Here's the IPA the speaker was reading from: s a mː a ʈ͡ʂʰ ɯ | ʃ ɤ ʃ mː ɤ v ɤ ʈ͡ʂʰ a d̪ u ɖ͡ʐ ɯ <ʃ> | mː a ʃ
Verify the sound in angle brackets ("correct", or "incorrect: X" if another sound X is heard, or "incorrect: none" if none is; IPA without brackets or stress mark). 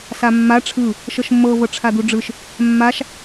correct